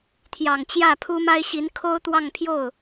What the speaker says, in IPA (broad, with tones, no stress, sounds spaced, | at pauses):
t̪ʰ j ɑ˨˩ ŋ t͡ɕ j ä˥˩ pʰ u˥ m a˥ ɪ̯ ɕ i˧˥ n kʰ o˥ ʊ̯ t̪ w ɑ˥˧ ŋ pʰ j o˥˩ ʊ̯